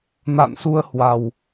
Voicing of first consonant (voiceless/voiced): voiced